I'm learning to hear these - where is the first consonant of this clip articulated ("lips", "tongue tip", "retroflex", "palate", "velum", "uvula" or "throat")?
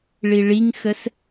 retroflex